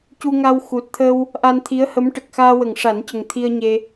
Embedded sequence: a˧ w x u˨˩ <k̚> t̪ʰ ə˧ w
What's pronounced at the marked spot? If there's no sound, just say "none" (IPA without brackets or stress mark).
t̚